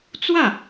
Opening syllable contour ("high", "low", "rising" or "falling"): falling